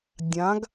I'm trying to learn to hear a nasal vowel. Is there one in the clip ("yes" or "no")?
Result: yes